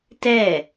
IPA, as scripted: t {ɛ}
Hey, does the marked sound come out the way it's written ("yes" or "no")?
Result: yes